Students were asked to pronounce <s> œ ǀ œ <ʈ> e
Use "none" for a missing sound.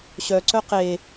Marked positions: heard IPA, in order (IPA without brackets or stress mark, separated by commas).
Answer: ɕ, q